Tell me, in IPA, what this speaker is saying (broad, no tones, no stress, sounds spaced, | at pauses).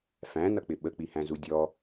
f æ̃ n ʌ k͡p ɪ ɓ ə k͡p i h æ̃ z u dʲ ɔ